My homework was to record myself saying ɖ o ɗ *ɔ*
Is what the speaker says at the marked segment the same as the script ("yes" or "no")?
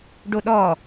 yes